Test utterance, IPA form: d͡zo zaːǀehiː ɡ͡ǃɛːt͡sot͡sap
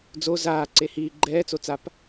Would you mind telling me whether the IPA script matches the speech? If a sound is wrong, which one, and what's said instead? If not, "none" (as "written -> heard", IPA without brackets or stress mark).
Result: none